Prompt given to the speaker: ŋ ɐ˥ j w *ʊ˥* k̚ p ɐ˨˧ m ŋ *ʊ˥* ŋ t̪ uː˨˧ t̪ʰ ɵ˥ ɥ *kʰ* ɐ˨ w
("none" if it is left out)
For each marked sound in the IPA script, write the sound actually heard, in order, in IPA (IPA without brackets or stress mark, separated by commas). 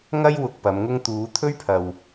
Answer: ʊ˧, ʊ˥, pʰ